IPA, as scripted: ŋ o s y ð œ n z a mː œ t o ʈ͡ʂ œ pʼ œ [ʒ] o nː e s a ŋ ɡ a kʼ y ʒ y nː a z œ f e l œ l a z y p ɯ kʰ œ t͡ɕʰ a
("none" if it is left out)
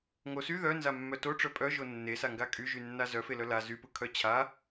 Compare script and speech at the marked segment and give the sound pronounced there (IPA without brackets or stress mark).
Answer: ʒ